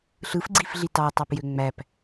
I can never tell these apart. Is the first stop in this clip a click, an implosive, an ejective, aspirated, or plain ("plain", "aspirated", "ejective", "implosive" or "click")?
click